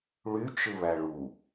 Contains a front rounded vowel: yes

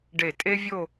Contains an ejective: yes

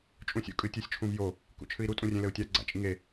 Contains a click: yes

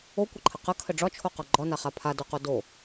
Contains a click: yes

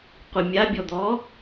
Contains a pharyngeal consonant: no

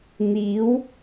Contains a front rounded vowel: no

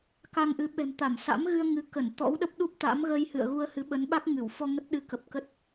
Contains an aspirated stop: no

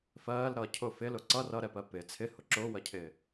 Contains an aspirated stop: yes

